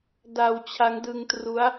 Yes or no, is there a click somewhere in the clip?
no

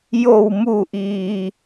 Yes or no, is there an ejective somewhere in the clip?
no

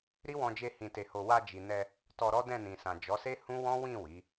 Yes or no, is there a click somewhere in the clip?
no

